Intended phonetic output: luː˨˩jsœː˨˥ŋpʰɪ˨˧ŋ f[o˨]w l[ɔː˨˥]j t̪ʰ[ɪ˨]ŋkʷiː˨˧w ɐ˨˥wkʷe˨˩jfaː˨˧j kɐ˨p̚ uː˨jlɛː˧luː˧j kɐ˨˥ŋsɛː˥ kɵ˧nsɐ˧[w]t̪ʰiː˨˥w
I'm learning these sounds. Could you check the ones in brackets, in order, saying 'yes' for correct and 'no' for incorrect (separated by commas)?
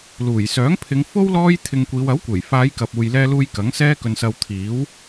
no, no, no, yes